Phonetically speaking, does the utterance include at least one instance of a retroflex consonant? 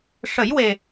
yes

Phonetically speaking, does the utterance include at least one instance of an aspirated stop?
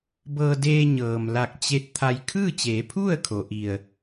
yes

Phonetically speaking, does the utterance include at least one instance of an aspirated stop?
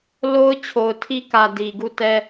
yes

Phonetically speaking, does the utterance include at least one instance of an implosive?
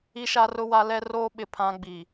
yes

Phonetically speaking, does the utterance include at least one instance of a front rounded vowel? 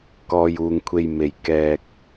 no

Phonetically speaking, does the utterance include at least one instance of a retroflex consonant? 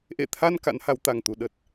no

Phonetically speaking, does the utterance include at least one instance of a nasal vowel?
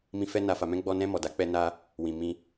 yes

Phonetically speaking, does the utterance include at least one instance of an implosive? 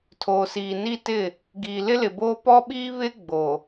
yes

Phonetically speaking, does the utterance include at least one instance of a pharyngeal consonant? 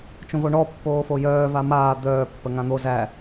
no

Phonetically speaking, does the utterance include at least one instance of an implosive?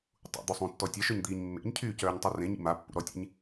no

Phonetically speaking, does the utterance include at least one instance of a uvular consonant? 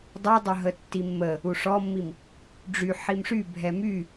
no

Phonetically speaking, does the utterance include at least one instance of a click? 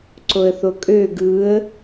yes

